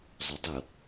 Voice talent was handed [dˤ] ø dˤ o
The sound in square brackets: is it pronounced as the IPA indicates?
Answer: no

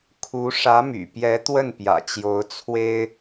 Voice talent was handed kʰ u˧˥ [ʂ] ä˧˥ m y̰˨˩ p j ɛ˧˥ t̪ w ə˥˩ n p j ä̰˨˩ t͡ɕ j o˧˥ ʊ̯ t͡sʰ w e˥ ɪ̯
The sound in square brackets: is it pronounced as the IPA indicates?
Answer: yes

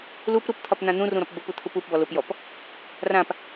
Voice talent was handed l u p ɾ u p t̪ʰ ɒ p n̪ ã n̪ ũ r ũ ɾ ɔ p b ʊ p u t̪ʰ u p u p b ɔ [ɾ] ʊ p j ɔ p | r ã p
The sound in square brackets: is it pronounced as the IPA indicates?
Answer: no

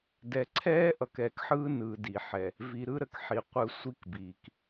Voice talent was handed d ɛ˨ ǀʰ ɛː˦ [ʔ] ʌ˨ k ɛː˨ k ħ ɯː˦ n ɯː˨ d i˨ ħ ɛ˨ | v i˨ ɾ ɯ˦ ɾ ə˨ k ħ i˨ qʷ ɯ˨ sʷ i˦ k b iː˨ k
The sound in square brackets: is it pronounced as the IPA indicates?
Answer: yes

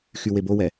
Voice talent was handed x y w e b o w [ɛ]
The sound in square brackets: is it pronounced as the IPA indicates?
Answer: yes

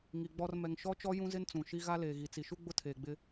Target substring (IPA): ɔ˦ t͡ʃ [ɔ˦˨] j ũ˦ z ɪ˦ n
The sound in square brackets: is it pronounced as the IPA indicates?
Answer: no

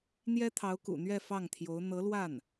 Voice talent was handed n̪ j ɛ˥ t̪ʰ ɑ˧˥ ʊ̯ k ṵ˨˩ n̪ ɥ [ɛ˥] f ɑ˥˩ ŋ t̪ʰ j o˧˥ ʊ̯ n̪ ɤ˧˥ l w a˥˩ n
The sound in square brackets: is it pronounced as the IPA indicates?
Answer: no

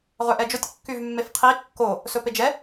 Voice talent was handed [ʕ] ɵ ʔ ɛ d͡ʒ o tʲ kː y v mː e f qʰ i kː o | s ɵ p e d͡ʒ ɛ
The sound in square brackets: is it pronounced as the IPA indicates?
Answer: no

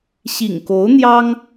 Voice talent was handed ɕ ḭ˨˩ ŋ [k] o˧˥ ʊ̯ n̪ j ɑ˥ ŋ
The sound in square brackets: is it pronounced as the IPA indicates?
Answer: yes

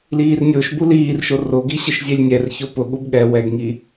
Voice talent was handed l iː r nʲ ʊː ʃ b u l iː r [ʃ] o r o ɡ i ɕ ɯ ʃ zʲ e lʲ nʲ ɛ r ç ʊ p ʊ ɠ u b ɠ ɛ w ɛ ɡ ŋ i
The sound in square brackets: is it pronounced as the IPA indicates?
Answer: yes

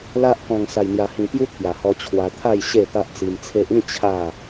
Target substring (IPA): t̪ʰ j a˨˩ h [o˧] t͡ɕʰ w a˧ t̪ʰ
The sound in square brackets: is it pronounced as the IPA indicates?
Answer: no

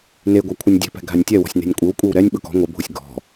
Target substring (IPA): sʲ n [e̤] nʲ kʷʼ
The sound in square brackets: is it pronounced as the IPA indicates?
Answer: yes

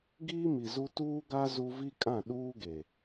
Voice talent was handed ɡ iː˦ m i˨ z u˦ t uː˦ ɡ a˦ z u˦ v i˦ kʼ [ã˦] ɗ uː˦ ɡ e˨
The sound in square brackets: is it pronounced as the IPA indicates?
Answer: no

